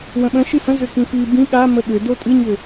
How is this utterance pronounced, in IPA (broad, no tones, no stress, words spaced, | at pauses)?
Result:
wə̃ɓə̃ ʃɨhə̃ zʏkĩfi bĩ ɠamə ɠʏ dotʼɨɲʏ